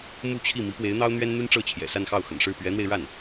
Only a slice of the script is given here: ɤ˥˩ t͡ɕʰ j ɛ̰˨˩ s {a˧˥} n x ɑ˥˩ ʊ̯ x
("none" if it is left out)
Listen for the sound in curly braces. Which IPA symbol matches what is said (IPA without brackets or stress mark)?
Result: a˥˧